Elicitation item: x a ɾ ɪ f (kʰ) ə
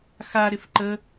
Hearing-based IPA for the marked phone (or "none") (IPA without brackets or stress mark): ǃ